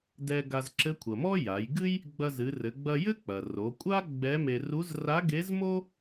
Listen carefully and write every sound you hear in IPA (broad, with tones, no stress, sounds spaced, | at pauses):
d ɛ˧ ɡ a˧ z ǁ ɘ˧˥ kʷʰ ɐ˩ m ɔ˥ j a˩˧ j ɡ ɨ˥ j | ɡ͡b ɐ˧ z ɨ˩˧ r ɘ˩˧ ɡ͡b ɐ˧ j ɘ˥ k͡p ɐ˩ r o˩˧ kʷʼ a˥ ɡ͡b ɛ˧˥ m e˧ r u˧˥ z r a˧˥ ɡ e˧˥ z m o˥